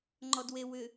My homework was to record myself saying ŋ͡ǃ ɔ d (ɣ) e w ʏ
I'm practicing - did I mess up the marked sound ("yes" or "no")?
yes